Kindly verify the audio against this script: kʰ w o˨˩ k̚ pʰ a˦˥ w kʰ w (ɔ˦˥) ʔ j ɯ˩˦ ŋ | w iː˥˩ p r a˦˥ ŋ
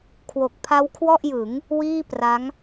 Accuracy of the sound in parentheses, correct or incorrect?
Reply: incorrect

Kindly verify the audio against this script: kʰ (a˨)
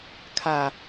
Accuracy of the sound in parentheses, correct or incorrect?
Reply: correct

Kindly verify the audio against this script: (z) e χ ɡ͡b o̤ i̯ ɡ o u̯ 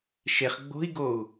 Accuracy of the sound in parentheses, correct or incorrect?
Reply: incorrect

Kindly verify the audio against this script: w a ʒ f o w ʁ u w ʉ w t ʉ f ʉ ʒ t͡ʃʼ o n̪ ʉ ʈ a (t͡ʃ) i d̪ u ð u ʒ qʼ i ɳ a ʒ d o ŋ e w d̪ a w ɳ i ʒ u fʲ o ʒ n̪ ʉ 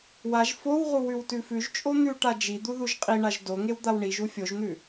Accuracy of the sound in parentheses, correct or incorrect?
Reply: incorrect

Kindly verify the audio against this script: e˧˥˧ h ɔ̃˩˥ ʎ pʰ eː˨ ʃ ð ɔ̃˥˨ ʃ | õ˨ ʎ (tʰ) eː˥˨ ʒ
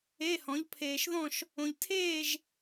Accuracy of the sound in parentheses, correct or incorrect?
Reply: correct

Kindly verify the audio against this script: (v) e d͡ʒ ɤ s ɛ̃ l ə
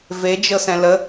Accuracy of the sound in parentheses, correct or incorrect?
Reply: correct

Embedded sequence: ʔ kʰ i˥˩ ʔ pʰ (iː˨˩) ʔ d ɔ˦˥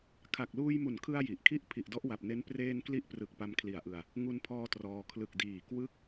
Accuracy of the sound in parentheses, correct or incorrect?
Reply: incorrect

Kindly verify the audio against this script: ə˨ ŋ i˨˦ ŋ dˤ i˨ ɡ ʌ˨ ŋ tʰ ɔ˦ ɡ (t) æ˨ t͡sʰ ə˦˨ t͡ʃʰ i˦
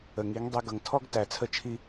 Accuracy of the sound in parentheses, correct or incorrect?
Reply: correct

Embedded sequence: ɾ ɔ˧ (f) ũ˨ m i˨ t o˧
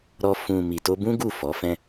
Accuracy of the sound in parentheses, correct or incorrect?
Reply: correct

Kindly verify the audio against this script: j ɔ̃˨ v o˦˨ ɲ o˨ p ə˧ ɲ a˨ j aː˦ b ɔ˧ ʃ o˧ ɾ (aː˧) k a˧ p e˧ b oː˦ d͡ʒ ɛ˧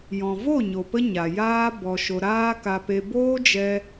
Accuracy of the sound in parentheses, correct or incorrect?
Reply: incorrect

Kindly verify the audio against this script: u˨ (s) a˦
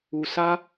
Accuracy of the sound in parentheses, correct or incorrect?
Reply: correct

